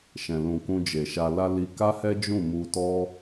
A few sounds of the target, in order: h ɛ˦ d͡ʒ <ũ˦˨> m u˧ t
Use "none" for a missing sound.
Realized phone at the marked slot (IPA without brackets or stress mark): ũ˦˨